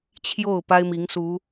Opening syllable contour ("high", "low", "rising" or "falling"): falling